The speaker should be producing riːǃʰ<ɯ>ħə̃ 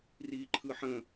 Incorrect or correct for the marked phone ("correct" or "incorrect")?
correct